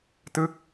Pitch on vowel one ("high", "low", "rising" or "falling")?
falling